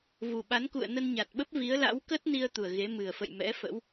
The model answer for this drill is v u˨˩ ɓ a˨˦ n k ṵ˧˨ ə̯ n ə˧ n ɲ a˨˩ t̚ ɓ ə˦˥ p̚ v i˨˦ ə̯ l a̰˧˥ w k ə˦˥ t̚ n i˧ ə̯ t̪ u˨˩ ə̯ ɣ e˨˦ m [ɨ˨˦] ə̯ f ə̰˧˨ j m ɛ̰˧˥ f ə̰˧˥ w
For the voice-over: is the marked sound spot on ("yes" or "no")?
no